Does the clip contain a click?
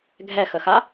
no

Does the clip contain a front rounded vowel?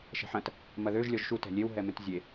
yes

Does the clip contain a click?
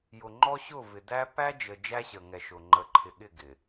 yes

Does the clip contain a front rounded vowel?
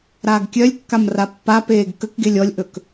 yes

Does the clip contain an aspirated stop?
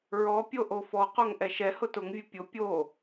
no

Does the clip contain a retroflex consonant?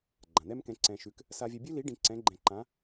yes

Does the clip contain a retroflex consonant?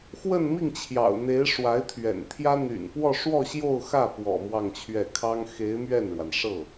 yes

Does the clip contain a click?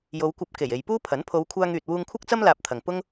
no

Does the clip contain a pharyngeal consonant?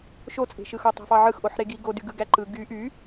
yes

